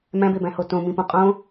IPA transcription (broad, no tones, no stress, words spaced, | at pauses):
mæ̃bebæ̃ho tõmĩpũ qʼõ